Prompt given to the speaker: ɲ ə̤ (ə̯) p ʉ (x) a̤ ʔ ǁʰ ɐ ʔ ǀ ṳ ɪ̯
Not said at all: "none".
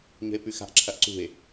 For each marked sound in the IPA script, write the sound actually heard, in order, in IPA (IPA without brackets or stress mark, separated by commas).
ɪ̯, x